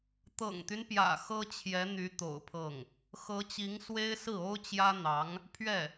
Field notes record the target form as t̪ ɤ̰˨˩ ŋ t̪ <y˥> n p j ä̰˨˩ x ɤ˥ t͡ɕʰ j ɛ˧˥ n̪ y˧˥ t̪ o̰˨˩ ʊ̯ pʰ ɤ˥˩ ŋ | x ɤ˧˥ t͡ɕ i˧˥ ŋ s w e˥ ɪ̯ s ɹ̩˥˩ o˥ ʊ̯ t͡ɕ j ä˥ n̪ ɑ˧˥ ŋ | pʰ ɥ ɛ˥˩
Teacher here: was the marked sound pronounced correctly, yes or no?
no